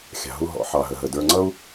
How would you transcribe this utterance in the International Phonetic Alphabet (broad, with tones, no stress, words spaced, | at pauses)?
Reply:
xʲɑ̤˧ɦu˦ɦɔ̰˨˦ ħɑ˨ɦə˨ɦə˨ də˞˧ŋ͡ǀʌ˦u̯